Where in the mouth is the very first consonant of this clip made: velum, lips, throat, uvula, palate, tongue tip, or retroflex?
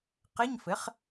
uvula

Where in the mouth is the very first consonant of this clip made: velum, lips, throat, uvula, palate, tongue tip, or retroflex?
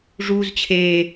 retroflex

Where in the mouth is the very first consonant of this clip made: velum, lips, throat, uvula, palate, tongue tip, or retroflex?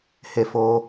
throat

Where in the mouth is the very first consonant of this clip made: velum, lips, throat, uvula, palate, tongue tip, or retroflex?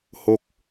throat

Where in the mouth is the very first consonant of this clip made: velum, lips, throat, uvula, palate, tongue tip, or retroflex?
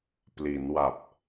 lips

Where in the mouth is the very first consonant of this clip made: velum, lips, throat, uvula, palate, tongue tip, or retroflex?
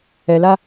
tongue tip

